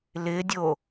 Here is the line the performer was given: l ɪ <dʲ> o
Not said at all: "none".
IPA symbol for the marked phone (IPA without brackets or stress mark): dʲ